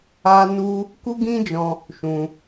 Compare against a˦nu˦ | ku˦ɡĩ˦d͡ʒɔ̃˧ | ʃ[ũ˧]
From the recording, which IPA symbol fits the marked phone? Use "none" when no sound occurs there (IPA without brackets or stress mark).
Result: ũ˧